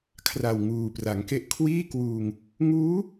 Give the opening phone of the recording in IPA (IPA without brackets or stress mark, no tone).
kʰ